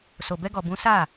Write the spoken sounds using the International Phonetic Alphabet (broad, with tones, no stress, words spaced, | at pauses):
so˨bɛ˧ɡɔ˨bũ˨˦ sa˦˨